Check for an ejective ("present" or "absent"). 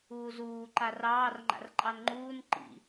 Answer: present